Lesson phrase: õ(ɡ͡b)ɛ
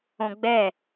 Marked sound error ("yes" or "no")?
no